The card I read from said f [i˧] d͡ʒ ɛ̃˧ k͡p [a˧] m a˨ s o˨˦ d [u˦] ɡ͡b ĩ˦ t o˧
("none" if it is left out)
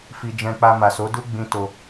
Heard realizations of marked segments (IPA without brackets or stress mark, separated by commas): i˧, a˧, u˦